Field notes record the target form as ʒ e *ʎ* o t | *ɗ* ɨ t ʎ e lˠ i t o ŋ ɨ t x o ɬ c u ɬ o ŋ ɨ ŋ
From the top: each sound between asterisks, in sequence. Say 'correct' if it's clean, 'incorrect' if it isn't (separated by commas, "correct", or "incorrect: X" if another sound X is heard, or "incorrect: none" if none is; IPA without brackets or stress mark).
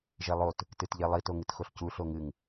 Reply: incorrect: lˠ, incorrect: t